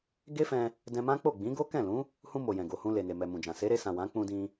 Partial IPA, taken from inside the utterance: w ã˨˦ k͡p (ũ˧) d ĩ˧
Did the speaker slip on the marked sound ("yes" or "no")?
no